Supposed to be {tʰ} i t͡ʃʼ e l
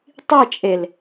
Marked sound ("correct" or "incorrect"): incorrect